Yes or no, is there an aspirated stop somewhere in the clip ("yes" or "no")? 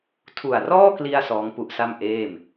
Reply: yes